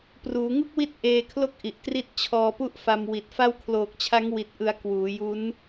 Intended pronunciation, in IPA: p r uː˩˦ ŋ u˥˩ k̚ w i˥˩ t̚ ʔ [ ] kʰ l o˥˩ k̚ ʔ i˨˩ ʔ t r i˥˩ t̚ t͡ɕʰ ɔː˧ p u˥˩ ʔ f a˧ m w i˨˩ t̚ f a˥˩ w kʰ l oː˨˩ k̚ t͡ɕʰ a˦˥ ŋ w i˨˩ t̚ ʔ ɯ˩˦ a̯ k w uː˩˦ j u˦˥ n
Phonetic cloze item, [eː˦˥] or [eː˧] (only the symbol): eː˧